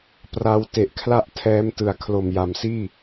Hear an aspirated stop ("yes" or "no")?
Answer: yes